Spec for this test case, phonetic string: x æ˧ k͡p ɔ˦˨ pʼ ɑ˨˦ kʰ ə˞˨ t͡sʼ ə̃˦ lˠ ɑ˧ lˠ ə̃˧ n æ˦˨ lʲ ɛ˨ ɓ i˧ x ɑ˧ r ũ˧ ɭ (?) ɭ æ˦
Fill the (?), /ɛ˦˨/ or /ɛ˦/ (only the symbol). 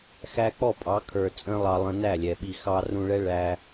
ɛ˦